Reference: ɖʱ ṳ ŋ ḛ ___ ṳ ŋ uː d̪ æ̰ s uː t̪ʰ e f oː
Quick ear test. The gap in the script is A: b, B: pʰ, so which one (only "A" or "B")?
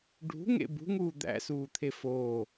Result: A